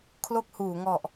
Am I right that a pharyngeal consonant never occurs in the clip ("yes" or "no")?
yes